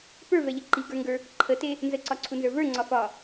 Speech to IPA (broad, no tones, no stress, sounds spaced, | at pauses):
p ə˞ v ɛ ʎ ə ǃ i ɡ ə˞ ŋ ɡ ə˞ | ǃʰ ə t e | n z ə ǀ ɒ ǀʰ u n z ə˞ v ə˞ ŋ͡ǀ ɒ f ɒ